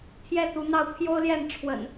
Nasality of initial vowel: oral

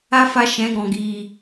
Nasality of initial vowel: oral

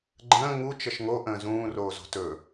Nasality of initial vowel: nasal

